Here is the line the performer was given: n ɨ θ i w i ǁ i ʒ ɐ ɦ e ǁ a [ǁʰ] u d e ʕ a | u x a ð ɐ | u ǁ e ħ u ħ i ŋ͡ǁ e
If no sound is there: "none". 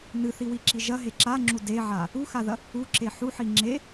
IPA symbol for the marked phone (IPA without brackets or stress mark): ŋ͡ǁ